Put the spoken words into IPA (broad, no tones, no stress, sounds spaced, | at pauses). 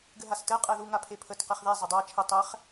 ɡ ɘ ɦ a s t ɘ qʼ ɛ ð u ŋ a pʰ e pʰ ə t q e χ ð e zˤ ɘ dˤ a t͡ʃʰ ɘ tˤ ɛ χ